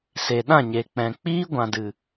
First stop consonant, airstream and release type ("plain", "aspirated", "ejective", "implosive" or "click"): implosive